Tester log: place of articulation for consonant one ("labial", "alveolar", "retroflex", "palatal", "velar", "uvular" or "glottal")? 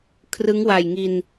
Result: velar